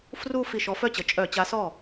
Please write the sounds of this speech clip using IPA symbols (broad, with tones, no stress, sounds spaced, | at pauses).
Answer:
f r u˥˧ f i˧˩ ʃ ɔ˨˥ f œ˥˩ t͡ɕ ə˩˧ t͡ʃʼ œ˧˩˧ t͡ɕ a˨˥ s ɔ˥˩